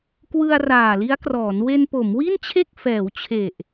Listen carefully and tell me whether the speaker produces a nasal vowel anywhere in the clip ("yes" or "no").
no